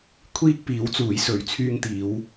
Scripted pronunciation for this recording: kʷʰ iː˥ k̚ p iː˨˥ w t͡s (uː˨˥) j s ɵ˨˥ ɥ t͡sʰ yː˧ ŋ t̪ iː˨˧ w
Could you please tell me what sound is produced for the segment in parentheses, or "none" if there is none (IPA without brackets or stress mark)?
uː˨˥